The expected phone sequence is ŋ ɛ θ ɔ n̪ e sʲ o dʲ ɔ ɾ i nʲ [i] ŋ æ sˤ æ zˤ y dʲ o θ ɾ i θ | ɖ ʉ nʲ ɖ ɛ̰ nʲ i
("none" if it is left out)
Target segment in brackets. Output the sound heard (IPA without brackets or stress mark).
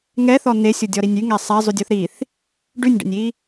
y